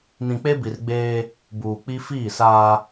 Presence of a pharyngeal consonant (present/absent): absent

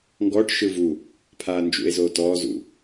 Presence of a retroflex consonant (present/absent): present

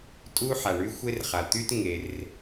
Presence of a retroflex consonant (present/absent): present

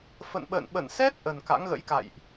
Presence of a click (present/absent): absent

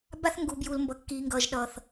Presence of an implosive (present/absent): present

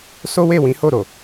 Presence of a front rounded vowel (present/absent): absent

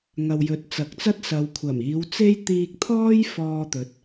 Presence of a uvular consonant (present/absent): absent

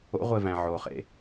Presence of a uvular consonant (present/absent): present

